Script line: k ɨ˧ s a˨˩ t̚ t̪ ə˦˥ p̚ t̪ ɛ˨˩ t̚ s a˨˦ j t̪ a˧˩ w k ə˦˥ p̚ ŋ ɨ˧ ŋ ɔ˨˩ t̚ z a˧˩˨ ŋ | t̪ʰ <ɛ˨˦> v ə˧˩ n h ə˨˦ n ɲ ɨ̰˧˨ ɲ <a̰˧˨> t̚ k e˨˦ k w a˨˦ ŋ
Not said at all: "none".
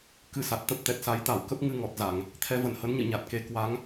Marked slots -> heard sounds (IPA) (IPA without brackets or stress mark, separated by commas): ɛ˨˦, a˨˩